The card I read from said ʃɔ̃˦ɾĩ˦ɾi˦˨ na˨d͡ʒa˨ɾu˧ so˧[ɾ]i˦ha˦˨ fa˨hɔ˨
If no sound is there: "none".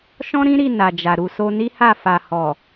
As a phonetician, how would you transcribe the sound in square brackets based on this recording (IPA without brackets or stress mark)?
n